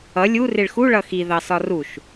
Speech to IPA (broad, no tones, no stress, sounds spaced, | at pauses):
ʌ lʲ u r ɪ ɭ x u ɭ ʌ x i ð ɑ s ɒ r u ʃ